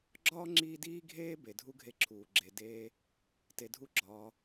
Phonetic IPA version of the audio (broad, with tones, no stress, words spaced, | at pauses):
ɡ͡ǁɒː˥ŋ͡ǁiː˦diː˥ɡʱeː˥ be˩dʱu˥ɡʱe˦ ǁʰuː˩ɡ͡ǁe˨ deː˥ | te˨dʱu˦ɡ͡ǁɒː˨